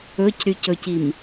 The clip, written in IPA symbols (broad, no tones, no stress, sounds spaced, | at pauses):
ɵ c ɾ y c ɵ c i m